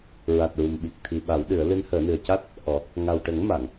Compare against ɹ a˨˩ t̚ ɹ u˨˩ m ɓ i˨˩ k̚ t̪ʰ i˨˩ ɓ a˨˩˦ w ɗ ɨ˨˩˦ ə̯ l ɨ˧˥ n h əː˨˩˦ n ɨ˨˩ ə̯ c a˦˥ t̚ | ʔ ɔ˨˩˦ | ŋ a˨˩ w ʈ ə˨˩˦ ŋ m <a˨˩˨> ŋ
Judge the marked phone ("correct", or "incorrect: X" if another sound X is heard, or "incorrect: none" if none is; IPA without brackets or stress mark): correct